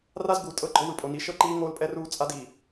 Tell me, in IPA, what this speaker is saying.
r a˦ z ɡ u˨ tʼ ɤ˦ ɡ͡ǃ ɔ˦ w ɯ˨ pʼ o˨ n i˨˦ ʃ ɤ˦˨ ǃ iː˦ ŋ oː˦ l pʼ ɛ˦ r uː˦ t͡sʼ a˦ d i˨

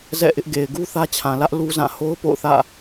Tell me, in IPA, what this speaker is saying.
z ɛ̰˦˨ ʔ ɪ˦ ʔ ɡ e˨ ɪ̯ ɡ u˦ θ ä˦ t͡ɕʰ ã˨ l ä˦ ʔ l u˦ z ã˦˨ h o˦ ʊ̯ p o̰˦˨ ʊ̯ θ ä̰˦˨

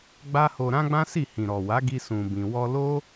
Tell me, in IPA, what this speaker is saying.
ɡ͡b a˦ h o˧ ɾ ã˦ ɡ͡b ã˦ s i˦˨ h ĩ˨ ɾ ɔ˨ w a˨˦ ɡ i˧ s ũ˧ b ĩ˧ w ɔ˧ l o˦

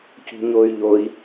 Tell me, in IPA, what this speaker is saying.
c ṳ ɲ o y̯ ʎ o i̯

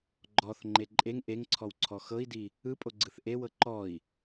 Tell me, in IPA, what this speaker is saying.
ɡ͡ǃ ɔ θ ŋ͡ǃ e ǃʼ e ŋ ʔ e ŋ ǀʰ ɔ w ǀʰ ɔ x ɤ i̯ d i | ɯ pʼ o ɡ͡ǀ ɯ θ ʔ e w ɤ ǃ ɔ i̯

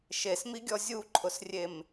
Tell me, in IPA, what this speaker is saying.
ʃ e s m i ɡʲ ɔ zʲ u ǃʰ ʊ s rʲ e m

